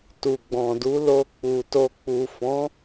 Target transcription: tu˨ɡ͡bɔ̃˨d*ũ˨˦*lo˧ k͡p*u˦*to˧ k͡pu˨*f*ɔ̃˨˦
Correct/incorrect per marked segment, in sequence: incorrect: u˨˦, incorrect: u˨, correct

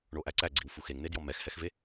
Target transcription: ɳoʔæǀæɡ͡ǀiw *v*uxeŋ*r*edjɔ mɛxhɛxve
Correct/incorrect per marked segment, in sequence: incorrect: f, incorrect: n̪

